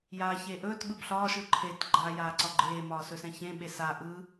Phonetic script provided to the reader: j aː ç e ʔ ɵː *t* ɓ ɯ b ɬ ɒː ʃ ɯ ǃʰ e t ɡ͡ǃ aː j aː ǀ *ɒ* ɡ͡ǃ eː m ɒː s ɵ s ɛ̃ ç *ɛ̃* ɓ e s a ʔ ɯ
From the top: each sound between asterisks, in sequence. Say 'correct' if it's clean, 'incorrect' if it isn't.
correct, correct, incorrect: ẽ

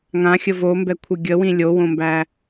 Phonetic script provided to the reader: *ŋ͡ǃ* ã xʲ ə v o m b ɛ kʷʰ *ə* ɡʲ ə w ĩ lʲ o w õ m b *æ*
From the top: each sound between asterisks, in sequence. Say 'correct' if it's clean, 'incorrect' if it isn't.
incorrect: ŋ, correct, correct

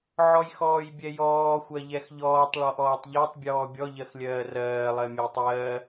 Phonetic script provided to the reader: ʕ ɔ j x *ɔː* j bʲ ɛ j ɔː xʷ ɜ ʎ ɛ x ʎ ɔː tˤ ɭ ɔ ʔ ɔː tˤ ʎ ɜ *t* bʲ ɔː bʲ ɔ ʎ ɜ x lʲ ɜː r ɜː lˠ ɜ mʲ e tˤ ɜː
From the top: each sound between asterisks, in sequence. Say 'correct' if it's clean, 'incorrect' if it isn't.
correct, incorrect: tˤ

